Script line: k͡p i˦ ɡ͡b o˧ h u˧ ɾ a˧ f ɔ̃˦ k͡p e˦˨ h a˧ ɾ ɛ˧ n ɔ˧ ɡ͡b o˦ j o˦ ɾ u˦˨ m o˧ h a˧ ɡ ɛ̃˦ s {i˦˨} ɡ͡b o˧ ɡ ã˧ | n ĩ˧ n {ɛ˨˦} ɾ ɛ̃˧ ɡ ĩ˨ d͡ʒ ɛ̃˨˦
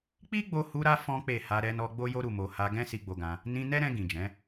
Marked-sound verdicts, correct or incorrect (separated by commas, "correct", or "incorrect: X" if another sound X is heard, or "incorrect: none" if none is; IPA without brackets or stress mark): incorrect: i˧, incorrect: ɛ˦